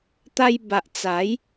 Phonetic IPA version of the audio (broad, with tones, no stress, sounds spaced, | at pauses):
t̪ a˧ j b a˨ ʔ t͡s a˨˦ j